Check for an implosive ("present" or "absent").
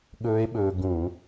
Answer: present